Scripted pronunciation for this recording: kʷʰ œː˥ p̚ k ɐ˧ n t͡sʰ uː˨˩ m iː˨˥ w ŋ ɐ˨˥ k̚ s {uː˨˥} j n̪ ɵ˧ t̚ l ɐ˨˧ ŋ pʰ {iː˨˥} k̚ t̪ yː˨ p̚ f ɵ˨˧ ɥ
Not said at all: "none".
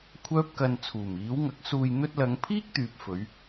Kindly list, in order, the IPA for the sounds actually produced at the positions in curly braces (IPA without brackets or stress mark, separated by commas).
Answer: uː˧, iː˥